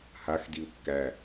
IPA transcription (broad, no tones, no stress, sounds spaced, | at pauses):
h a x d i u̯ kː æ